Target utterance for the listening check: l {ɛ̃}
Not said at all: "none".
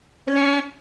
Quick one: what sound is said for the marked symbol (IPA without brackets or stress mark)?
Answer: ɛ̃